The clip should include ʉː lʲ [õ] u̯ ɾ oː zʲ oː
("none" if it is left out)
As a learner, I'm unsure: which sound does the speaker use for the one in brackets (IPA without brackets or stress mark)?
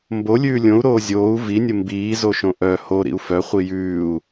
õ